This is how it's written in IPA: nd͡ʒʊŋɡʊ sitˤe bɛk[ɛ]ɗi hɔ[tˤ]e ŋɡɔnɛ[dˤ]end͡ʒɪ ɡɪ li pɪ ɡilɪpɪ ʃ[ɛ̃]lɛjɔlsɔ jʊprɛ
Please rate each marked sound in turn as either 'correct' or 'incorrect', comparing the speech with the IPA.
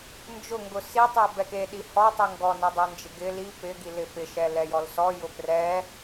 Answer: incorrect, correct, correct, incorrect

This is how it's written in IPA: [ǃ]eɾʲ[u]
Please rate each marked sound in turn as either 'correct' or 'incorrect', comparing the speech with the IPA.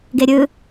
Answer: incorrect, incorrect

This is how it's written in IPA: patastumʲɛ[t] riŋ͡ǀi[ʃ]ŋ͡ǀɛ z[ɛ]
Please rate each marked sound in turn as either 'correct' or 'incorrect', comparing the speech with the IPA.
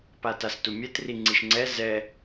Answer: correct, correct, correct

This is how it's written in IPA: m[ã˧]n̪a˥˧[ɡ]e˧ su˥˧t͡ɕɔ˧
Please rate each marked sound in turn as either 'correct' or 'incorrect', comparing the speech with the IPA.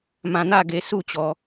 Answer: correct, correct

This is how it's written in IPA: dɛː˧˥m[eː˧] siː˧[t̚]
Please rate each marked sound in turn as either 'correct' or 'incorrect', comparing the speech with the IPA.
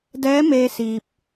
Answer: correct, incorrect

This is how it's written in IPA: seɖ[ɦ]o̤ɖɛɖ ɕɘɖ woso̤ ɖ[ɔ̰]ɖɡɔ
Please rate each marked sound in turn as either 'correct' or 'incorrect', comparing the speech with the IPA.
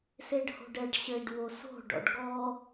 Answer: incorrect, correct

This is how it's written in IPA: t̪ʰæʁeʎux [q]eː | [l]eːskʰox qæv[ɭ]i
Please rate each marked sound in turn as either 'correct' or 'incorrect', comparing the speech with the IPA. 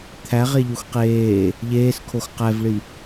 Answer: correct, incorrect, correct

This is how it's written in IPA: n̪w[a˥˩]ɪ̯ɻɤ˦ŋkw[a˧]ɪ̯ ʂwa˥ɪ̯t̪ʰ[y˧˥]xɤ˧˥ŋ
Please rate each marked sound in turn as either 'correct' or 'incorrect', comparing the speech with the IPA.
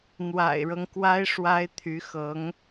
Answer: incorrect, incorrect, correct

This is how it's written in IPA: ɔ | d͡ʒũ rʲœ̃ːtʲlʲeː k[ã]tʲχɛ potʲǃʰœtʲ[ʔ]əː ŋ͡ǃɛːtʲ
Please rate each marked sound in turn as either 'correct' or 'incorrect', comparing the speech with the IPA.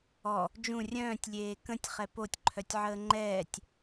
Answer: incorrect, incorrect

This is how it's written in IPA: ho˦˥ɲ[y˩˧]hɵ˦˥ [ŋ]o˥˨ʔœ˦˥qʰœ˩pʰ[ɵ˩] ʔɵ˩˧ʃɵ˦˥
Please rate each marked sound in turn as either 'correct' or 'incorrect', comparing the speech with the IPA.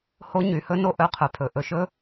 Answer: correct, incorrect, incorrect

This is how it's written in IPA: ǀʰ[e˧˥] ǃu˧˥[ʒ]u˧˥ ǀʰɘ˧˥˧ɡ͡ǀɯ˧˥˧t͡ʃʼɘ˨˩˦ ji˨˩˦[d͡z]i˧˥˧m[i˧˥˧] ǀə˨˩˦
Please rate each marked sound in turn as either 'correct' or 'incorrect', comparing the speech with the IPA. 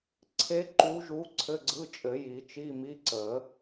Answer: correct, correct, incorrect, correct

